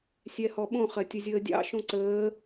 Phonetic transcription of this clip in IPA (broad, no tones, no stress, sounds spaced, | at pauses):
sʲ ɛ h ɔ ɓ õ χ ɜ tʲ ə zʲ əː dʲ ɑ̰ ʃ õ ǀ əː